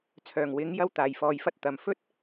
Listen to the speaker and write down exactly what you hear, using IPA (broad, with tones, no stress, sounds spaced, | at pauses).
t͡sʰ œː˨˩ ŋ w ɪ˨˥ ŋ j ɐ˥ w t̪ aː˨ j f ɔː˧ j f ɐ˥ t̚ t̪ ɐ˨ m f ɵ˥ t̚